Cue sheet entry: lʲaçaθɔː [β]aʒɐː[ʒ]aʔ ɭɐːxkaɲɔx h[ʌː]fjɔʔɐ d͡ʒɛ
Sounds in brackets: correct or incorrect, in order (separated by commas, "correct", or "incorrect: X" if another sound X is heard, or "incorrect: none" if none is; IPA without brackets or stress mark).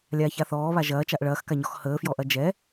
correct, incorrect: t͡ʃ, incorrect: əː